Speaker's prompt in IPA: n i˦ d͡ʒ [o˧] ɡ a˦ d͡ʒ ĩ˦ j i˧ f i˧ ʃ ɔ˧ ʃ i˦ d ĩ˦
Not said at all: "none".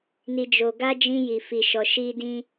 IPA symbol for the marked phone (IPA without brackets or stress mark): o˧